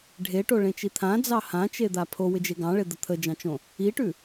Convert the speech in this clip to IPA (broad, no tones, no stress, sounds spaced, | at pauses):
ɖʱ e ʈ o ɭ ẽ t͡ʃ i t̪ʰ ã d͡z ɑ h ã t͡ʃ e d̪ a pʰ o w ɪ d͡ʒ e ɡ ɑ̃ ɭ e d̪ ə t̪ʰ ə d͡ʒ ɑ̃ t͡ʃ õ | i ʈ ʉ